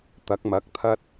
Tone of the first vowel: rising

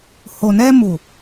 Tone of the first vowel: low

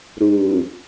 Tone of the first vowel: low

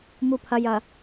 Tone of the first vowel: low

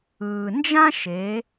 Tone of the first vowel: low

